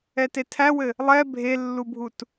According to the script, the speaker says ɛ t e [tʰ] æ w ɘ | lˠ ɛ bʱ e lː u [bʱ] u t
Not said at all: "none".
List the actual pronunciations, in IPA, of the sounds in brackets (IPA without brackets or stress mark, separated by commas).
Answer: tʰ, bʱ